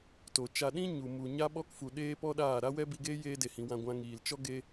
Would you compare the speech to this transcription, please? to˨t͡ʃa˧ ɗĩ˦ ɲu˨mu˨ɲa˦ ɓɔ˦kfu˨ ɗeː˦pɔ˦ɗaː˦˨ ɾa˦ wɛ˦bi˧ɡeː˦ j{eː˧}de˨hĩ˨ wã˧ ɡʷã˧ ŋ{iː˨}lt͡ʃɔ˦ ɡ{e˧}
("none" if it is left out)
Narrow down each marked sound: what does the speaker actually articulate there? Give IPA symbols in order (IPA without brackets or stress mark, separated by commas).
eː˧, iː˨, e˧